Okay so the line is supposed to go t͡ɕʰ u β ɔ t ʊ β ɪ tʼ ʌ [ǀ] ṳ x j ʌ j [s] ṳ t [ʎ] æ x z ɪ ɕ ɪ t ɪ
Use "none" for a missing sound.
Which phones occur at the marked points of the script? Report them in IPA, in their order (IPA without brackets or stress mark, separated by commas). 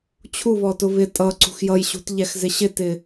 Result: ǀ, ɕ, ʎ